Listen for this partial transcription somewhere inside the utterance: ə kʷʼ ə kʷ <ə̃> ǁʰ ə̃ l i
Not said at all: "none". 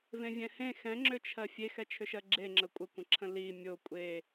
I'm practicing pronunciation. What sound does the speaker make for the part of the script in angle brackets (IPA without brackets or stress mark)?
ə̃